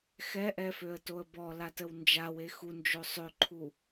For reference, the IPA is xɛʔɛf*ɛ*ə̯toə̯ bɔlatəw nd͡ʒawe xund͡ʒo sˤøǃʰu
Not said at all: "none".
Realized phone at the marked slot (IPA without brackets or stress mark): ø